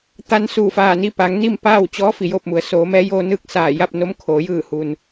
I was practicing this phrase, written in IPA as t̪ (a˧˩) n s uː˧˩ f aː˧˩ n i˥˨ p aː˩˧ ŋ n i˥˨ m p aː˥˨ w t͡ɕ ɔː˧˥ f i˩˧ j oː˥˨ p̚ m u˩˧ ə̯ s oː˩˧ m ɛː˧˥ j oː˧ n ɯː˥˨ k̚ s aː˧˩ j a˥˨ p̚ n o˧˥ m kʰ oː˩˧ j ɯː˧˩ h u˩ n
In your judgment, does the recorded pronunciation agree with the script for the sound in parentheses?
no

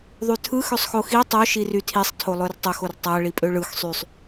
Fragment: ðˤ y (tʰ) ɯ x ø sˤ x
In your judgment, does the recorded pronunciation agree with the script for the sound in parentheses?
yes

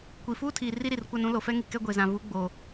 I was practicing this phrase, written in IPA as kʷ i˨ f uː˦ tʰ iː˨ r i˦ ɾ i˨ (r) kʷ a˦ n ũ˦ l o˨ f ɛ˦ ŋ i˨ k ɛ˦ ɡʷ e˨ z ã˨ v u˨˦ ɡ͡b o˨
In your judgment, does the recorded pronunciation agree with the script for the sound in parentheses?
yes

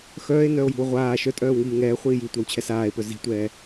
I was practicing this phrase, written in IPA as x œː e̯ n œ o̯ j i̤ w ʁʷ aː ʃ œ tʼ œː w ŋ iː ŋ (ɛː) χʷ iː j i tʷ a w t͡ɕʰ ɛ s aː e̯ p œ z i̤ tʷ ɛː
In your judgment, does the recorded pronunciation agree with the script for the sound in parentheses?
yes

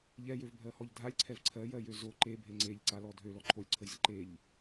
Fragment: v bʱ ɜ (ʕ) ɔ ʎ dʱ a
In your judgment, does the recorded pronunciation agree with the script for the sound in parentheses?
no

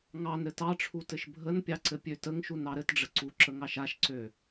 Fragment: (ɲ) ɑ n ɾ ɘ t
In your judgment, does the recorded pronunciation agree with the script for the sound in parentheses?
no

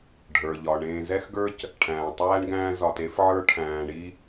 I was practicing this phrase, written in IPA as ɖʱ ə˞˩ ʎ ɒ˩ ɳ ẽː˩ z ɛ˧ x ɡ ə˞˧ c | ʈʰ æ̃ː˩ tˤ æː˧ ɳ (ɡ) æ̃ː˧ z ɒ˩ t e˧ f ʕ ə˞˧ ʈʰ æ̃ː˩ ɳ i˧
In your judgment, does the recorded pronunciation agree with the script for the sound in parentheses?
yes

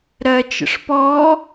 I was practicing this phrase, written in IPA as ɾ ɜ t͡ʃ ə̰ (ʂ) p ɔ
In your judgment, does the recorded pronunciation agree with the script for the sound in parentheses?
yes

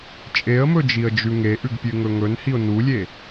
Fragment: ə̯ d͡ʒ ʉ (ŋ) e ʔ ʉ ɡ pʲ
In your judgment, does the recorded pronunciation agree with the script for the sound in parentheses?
yes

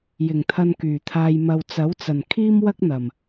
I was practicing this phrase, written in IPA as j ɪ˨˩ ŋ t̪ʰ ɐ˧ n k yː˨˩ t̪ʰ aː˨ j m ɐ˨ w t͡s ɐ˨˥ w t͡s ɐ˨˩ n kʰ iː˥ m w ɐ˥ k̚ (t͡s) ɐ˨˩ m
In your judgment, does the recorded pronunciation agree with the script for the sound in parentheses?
no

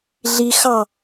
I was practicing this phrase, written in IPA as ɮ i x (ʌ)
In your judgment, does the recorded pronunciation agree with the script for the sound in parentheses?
no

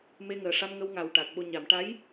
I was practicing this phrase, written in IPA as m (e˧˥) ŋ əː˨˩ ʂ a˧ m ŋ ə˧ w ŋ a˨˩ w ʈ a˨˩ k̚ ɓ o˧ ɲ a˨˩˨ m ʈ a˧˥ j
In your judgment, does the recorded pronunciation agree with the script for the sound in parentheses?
no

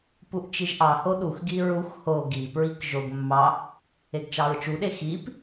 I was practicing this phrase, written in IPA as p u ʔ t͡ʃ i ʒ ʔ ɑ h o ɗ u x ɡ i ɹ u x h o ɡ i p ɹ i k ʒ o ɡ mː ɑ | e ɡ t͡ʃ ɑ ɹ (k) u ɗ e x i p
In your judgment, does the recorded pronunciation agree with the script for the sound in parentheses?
no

